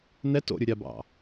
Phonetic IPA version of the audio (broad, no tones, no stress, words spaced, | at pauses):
nɛt o̰ɾʲu ɾʲabɑ̰